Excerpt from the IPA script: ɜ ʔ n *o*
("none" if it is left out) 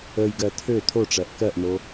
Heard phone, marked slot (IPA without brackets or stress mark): o